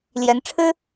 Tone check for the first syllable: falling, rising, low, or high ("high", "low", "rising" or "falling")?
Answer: rising